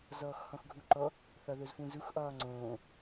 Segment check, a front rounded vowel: absent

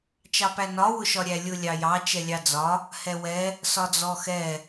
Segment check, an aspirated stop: absent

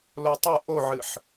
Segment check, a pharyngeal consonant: present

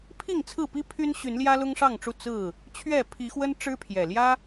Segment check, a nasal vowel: absent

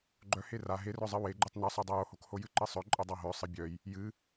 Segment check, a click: present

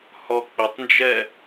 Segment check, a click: absent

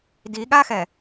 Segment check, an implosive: present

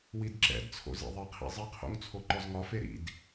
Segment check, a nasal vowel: absent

